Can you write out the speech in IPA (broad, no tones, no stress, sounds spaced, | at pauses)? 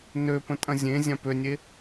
n ø p ə̃ tʼ ɐ̃ zʲ ẽ zʲ ã p ø nʲ e